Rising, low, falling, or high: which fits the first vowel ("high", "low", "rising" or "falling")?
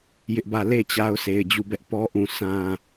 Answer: high